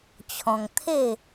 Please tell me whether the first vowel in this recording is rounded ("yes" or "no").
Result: yes